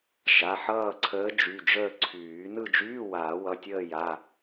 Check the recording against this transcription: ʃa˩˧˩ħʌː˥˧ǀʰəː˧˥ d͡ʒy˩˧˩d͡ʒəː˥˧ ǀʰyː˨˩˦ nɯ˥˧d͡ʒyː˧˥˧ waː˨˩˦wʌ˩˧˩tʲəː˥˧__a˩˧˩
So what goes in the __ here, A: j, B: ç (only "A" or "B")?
A